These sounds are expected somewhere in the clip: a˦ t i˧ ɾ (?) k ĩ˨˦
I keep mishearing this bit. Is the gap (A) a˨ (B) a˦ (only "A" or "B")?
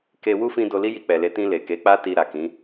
A